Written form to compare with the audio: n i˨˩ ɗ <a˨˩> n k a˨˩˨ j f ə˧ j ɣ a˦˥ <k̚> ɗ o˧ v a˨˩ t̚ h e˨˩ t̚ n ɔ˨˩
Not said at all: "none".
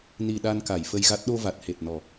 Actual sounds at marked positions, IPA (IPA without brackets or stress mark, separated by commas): a˧, t̚